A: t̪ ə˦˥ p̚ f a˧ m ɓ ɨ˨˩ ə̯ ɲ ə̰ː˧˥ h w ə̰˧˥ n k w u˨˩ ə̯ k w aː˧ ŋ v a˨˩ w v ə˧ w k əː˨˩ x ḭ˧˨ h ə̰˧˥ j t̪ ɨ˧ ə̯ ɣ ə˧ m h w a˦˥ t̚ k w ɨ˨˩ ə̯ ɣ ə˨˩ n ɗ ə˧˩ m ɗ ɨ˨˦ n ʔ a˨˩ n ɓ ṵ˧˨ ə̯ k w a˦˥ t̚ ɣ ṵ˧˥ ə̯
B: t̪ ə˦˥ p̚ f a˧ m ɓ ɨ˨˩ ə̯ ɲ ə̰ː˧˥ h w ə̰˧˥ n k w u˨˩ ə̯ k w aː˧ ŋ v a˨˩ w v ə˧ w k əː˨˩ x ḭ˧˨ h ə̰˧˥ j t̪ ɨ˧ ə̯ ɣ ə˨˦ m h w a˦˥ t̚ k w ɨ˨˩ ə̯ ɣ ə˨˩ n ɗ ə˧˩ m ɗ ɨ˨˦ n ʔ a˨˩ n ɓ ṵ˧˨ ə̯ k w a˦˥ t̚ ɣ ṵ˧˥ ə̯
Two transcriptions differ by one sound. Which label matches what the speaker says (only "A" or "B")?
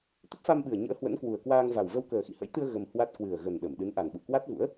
A